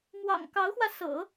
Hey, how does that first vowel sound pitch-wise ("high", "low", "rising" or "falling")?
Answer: low